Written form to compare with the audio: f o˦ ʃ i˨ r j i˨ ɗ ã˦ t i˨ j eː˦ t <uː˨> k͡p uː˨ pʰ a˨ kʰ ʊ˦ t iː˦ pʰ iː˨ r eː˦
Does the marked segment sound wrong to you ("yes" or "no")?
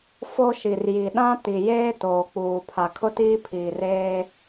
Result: yes